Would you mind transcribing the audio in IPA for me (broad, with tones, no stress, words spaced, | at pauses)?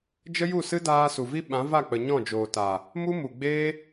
d͡ʒə˦ju˦˨sɨ˦ daː˧ su˨vi˦ ɓã˨˦va˦˨k͡pə˨ ɲɔ̃˦˨d͡ʒoː˨ta˨ | mu˦mu˨ɡ͡beː˦